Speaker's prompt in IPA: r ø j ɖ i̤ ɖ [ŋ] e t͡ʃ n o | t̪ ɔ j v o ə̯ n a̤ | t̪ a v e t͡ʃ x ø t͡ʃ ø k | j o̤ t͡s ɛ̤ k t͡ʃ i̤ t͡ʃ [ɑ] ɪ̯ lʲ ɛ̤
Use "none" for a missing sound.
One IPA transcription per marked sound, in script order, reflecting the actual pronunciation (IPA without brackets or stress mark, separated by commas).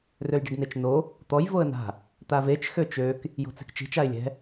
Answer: n, a